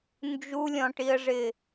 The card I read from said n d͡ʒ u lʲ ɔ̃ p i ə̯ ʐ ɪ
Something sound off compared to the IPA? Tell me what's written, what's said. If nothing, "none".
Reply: p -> ʈ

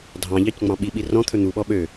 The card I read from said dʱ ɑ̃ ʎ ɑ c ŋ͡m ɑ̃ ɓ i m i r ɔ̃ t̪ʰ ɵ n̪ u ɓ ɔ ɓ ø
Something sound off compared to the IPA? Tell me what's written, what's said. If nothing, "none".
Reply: m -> ɓ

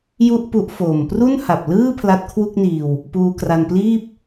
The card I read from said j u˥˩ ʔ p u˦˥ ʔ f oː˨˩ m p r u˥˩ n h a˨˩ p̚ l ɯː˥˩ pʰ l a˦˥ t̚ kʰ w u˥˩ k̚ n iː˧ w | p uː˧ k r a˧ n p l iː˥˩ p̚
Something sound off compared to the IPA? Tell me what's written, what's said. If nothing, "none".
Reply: none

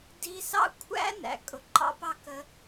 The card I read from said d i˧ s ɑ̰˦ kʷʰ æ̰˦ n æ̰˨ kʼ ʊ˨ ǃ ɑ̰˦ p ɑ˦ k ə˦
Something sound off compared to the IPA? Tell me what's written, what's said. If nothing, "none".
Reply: none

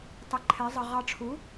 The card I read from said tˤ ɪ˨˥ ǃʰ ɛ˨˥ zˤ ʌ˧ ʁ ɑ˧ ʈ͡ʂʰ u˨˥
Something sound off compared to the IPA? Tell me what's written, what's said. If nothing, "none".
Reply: none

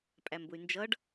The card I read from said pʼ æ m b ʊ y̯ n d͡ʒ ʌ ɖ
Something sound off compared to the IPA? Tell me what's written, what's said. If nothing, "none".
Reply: none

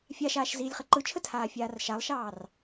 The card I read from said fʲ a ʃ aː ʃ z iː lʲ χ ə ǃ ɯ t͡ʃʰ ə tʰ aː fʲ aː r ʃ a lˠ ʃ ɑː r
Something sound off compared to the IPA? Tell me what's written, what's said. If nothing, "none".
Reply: none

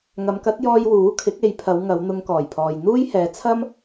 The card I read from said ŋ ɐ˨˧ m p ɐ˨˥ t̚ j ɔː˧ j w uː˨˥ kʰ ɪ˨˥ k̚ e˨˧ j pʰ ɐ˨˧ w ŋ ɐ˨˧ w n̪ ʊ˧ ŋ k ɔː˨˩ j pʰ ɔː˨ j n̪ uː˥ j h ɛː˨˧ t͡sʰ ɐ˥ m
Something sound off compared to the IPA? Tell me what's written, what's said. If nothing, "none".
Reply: p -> k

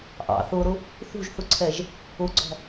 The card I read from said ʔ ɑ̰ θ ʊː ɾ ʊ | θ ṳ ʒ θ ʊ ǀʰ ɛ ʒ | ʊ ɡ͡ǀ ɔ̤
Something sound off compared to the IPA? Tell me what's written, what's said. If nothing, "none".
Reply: none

